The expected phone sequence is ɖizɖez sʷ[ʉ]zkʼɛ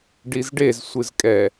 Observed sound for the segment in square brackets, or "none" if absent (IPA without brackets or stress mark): ɨ